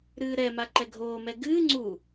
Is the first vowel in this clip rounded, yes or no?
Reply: no